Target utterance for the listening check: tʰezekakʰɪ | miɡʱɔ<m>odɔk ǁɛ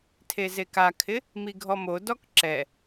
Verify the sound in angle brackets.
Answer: correct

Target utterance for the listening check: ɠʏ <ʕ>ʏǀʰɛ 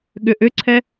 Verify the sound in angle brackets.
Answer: incorrect: ʔ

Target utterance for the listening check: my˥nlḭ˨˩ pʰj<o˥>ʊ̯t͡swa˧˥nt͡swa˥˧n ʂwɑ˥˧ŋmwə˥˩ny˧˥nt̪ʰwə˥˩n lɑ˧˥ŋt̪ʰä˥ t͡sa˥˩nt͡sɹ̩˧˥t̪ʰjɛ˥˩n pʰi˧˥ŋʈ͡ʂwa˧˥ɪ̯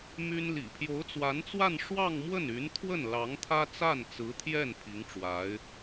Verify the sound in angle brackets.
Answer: incorrect: o˧˥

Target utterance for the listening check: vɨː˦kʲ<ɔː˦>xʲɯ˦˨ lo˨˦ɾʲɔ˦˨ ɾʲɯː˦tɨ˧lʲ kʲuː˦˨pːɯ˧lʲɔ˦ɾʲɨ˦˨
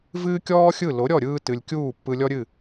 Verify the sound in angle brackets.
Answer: correct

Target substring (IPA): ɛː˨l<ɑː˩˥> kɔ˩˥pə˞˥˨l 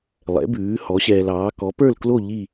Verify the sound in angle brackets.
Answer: correct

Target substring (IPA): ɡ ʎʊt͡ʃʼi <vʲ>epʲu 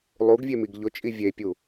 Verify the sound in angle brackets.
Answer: correct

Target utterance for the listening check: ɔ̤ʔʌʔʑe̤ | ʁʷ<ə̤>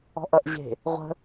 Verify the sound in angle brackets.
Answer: correct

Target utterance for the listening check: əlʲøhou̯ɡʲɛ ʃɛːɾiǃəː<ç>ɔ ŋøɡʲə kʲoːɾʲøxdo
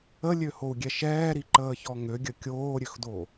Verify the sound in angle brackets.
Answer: correct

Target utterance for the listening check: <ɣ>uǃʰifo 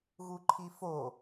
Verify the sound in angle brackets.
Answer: correct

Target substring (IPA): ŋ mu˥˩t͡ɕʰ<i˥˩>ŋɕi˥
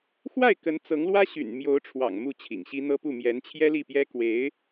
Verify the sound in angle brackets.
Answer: incorrect: ḭ˨˩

